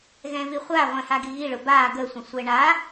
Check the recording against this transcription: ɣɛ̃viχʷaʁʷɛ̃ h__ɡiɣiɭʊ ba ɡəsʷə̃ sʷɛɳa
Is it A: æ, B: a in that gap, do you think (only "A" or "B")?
B